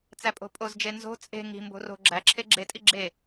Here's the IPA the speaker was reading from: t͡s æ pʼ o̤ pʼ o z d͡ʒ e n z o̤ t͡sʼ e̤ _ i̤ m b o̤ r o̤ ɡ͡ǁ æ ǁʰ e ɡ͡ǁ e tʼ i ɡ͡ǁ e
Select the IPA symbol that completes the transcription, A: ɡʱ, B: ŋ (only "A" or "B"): B